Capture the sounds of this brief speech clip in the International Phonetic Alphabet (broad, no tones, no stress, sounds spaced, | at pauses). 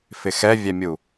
f ɪ x ɛ vʲ ɛ mʲ u